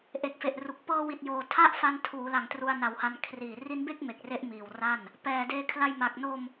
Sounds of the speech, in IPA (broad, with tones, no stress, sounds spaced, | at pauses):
ʔ e˨˩ k̚ f e˨˩ ʔ r u˨˩ k̚ p ɤː˧ w i˨˩ t̚ j oː˨˩ tʰ a˥˩ ʔ f a˧ n tʰ uː˩˦ l a˨˩ ŋ t r u˧ a̯ n a˩˦ w h a˧ n kʰ r iː˨˩ r i˦˥ n b e˥˩ k̚ m e˨˩ k̚ r e˦˥ ʔ m iː˨˩ w r a˥˩ n | p ɛː˨˩ d eː˧ kʰ l a˧ j m a˨˩ k̚ n o˧ m